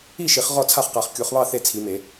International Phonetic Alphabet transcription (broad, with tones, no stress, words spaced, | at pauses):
i˥˨ʃi˨˩˦χ ʁɔ˥˨t͡sʰa˥˨χqa˨˩˦χ kʲu˨˩˦χβɑ˥˨ θe˥˨t͡sʰi˨˩˦me˨˩˦